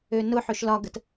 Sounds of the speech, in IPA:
ønʊħøʃ lɒɡət

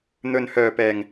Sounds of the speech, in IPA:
n̪ɵ˨nhœː˨˩pɛː˨˩ŋ

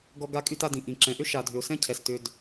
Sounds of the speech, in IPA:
ɡɔ˧ɡa˧kʼy˧t a˧dĩ˨ ʔĩ˨ǁɛ̃˨ʔʏ˦ ʃa˨dʱʏ˨ʊ̯sɛ̃˧cʰɛ˨s tʏ˧d

